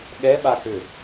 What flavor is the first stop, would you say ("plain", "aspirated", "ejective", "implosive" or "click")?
implosive